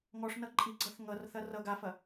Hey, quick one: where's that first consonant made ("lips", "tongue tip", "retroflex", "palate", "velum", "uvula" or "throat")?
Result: velum